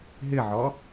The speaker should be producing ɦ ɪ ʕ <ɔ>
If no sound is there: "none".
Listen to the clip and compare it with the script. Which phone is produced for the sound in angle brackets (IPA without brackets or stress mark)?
ɔ